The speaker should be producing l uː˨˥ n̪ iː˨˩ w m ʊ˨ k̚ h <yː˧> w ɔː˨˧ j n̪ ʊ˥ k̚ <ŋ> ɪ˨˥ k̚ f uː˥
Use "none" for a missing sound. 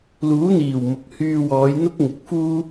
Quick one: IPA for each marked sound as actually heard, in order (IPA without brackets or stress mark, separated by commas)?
yː˧, ŋ